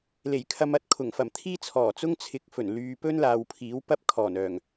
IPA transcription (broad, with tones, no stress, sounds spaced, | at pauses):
l e˨˩ j kʰ ɐ˧ m ɐ˥ t̚ kʰ ʊ˨˩ ŋ f ɐ˨˩ m t̪ʰ iː˥ t͡sʰ ɔː˨˩ t͡s ʊ˥ ŋ t͡sʰ ɪ˨˥ k̚ f ɵ˨˩ n l yː˨ p ɵ˥ n l aː˨ w pʰ iː˨˥ w p ɐ˥ p̚ kʰ ɔː˨˩ n œː˨˩ ŋ